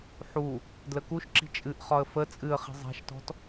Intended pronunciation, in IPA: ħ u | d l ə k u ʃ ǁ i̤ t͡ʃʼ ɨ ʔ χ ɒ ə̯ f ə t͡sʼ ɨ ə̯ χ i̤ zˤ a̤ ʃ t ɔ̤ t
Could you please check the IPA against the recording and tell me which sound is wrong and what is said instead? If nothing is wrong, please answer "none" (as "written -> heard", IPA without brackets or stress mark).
none